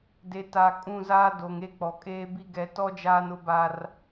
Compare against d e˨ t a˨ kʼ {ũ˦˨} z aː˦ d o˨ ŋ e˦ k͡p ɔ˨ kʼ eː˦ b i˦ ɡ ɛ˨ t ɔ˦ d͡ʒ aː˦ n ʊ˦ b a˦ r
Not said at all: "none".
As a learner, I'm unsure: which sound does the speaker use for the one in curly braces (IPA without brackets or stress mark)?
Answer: ũ˦˨